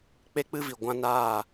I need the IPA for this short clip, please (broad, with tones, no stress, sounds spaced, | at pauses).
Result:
k͡p e˦ k͡p ɨ˦ v i˨ ɡʷ ã˦ n aː˦˨